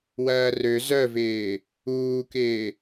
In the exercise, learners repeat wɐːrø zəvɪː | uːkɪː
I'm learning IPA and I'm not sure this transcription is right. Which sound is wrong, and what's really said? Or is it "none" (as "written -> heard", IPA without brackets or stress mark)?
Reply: ə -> œ